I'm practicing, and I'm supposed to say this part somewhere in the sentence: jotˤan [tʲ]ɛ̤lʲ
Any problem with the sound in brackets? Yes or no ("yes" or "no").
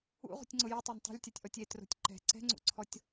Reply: yes